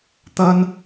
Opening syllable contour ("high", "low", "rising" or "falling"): high